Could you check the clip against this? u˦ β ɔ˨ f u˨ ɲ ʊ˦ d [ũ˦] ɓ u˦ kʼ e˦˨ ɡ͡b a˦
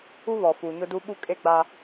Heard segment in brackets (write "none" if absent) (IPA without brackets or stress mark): u˦